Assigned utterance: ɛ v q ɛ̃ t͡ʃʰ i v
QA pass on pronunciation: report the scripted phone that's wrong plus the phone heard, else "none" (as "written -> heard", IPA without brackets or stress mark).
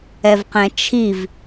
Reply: none